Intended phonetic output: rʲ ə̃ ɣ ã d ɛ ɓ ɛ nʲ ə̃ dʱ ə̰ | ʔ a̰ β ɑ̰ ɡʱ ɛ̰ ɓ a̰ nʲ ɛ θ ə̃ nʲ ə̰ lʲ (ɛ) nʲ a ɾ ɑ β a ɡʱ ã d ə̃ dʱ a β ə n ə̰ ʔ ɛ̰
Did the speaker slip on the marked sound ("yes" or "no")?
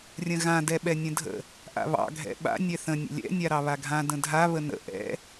yes